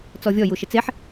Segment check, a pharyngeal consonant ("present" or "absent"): present